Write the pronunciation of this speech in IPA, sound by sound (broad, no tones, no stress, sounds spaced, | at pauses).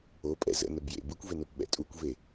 o pʼ ɛ̰ z ə̰ n ə b j ḛ b ɯ kʷ v e n o p ɓ ɛ̰ tʼ u kʷ v e